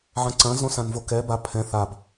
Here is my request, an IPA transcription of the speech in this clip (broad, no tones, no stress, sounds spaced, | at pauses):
ʕ ɐ̃ ǀ ɐ̃ z õ s ã n v o k ɛ b a pʰ ɛ̃ θ a b